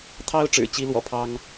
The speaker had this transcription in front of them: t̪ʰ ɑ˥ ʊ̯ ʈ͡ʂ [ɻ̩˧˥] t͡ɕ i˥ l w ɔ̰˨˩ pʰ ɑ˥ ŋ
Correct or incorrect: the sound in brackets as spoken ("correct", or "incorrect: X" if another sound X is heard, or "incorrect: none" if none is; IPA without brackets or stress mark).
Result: incorrect: ɻ̩˨˩